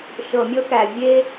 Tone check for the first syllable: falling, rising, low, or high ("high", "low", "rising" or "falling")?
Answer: low